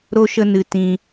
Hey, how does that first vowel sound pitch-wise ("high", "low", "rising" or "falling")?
high